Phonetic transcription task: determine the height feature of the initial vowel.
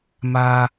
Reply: low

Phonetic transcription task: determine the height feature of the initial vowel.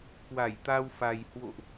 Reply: low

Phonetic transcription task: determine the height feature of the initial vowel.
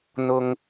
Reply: high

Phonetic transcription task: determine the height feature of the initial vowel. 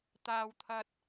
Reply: low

